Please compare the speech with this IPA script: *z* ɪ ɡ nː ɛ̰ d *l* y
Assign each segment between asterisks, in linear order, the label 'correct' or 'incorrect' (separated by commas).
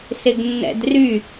incorrect, incorrect